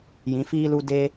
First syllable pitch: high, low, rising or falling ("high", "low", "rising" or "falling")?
rising